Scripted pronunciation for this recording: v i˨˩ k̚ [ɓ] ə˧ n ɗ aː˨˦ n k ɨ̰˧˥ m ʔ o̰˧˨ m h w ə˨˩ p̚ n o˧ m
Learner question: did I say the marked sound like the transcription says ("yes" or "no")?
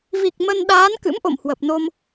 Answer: no